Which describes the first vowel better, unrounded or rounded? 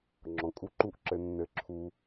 rounded